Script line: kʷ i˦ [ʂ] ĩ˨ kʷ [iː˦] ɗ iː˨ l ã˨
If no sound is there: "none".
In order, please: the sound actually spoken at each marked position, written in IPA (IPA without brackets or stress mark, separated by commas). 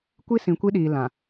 s, i˦